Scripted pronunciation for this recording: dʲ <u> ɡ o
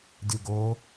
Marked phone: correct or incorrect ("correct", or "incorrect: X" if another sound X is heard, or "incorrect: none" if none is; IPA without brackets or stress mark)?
correct